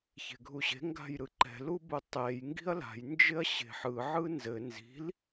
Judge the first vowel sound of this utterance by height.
mid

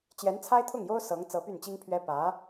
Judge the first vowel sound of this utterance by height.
mid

